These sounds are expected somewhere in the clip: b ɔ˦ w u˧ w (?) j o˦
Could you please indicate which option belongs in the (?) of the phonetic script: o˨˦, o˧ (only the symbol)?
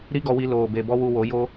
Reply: o˨˦